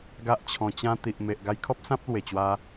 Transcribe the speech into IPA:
ɡa˦ʔt͡ɕʰɔ̃˧ t͡ɕã˧t̪i˨ʔme˨ʔ ɡa˧jkʰɔ˦p̚sã˦p̚lwe˨˩ t͡ɕwa˧

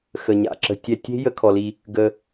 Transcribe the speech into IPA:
xə˧ɲa̰˨ǁə̤˦ tʲɛ˧tʲe̤˦ jə˦kʰɔ˧li˧ | ɡə˧

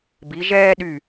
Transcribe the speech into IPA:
bi˩˧ ʒɛː˦ɗy˧˩

